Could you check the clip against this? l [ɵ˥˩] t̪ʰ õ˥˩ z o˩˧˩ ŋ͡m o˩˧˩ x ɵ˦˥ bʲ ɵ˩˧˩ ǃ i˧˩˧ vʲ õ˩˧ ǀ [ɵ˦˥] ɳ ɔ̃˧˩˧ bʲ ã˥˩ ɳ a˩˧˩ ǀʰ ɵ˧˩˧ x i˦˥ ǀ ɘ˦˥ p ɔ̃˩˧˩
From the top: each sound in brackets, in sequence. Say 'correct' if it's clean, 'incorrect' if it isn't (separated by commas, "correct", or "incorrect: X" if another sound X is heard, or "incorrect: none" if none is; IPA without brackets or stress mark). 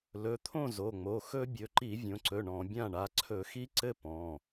incorrect: ɵ˩˧˩, incorrect: ɵ˩˧˩